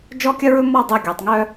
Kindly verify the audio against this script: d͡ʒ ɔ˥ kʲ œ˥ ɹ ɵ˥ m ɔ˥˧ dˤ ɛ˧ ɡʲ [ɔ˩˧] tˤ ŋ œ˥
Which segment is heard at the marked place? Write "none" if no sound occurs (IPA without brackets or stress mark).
ɔ˩˧